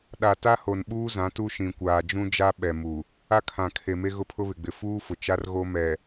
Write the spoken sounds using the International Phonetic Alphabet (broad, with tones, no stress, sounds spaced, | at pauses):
ɗ a˨ t a˦ h o˨ n ɓ uː˦ z ã˨˦ t u˦ ʃ ĩ˨ kʷ aː˨ d͡ʒ ũ˦ d͡ʒ a˦ ɓ ɛ˨ m u˨ | a˦ kʰ ã˨ kʰ e˨ m e˦ ɣ ʊ˦ pʰ ʊ˦ β ɪ˨ ɡ͡b ɪ˨ f uː˦ f ʊ˨ t͡ʃ a˦ r ɣ o˦ m ɛ˨